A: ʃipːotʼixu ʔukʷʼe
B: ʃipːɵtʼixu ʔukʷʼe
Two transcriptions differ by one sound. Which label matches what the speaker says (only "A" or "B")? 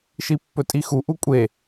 B